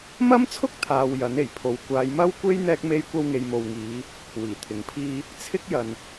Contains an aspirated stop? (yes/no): yes